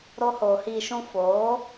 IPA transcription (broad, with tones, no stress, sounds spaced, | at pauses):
ɾ o˧ h oː˨ h iː˨ ʃ ũ˧ f oː˨˦